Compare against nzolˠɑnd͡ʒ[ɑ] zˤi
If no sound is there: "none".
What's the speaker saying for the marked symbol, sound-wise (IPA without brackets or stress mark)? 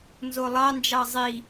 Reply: ɑ